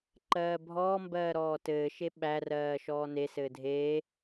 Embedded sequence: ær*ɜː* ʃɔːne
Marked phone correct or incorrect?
correct